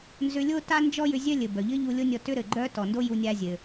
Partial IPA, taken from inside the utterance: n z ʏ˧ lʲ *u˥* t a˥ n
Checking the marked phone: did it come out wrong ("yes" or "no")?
yes